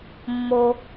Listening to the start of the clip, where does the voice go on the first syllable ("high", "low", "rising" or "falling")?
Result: high